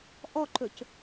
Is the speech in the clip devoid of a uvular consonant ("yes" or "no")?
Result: yes